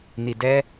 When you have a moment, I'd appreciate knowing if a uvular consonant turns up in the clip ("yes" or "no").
no